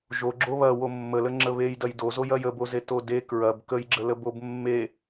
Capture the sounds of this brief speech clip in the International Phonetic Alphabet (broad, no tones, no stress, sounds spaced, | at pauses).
ʒ o ɡ͡ǁ o β ɐ w o mː ə l ə ŋ͡ǁ ə β e j d ɐ j d o z o j ɐ j ə b o z e t o d e k ɹ ɐ b k ə j ɡ͡ǁ ə l ə b o b mː e